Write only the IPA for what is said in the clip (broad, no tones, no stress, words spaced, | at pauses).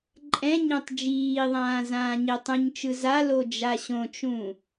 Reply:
ǃʼɛ̃ɲɛ̃tˤ d͡ʒiːðˤãː zãːɲetˤũɲt͡ʃɯ zalo d͡ʒaɕõt͡ʃũ